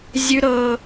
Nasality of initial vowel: oral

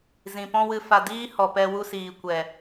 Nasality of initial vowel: nasal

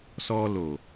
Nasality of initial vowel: oral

